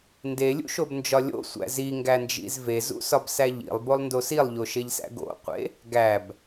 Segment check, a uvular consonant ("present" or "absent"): present